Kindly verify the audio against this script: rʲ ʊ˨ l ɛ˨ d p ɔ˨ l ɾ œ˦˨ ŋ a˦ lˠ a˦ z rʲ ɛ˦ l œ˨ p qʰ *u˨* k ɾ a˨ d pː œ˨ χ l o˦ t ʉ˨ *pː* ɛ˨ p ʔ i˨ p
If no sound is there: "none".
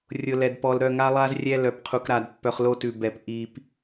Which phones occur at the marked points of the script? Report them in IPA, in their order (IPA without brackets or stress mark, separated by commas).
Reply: u˨, b